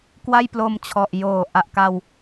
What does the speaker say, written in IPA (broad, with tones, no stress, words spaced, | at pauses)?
kwa˥˩jplo˧mt͡ɕʰɔ˨˩ʔ joː˨˩ ʔa˨˩ʔka˧w